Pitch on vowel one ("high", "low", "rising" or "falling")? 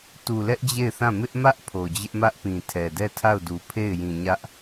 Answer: low